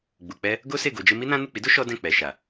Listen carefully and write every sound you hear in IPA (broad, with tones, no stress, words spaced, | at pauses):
ɡ͡bu˨k͡pɛ˧ | ɡo˦se˦˨ ɡo˧d͡ʒe˦ mi˦nã˦ nu˦˨k͡pi˨˦do˦ ʃɔ˦dɛ̃˦˨ k͡pɛ˨ʃa˨